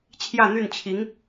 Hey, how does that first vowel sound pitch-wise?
falling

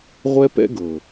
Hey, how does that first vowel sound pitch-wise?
high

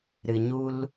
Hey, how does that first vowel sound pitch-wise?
low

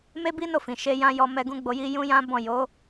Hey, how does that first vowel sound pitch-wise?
high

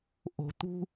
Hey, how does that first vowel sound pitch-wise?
low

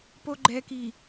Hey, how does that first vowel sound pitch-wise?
low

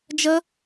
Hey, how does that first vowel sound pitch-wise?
high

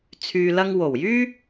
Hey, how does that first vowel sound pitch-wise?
low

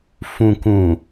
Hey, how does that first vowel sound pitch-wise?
low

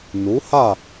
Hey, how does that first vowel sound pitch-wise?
rising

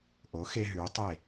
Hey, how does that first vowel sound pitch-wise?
rising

